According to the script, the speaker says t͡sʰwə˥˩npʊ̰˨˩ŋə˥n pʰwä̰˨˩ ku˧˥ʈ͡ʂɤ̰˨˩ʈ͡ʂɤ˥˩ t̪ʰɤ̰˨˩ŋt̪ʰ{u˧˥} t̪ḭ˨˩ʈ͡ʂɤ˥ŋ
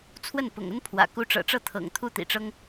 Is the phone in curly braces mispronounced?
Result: yes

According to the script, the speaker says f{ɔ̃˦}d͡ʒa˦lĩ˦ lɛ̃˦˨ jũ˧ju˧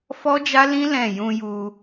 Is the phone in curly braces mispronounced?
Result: yes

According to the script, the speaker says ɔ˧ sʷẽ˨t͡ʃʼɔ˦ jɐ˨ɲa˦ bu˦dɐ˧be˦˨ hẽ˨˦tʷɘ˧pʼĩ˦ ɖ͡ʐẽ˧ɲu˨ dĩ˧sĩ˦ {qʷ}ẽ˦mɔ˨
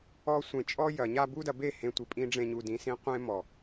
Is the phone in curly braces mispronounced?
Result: no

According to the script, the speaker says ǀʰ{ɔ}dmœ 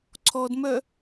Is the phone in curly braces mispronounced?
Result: no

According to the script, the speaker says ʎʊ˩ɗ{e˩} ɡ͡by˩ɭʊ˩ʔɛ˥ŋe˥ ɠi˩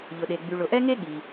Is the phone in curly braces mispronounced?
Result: no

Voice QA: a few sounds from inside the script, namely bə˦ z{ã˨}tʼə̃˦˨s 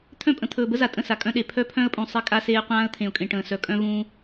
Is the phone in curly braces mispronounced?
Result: yes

